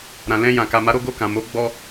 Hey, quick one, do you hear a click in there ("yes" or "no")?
no